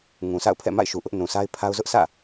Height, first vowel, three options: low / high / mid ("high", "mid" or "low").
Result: high